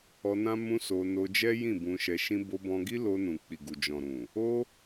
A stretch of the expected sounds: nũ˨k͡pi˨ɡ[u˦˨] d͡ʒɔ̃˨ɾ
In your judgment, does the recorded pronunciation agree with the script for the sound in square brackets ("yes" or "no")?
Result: no